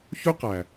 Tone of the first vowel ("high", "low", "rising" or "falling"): high